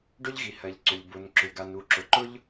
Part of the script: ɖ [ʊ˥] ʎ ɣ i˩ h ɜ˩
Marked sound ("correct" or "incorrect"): correct